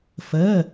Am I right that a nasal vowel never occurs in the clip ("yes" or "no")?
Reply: yes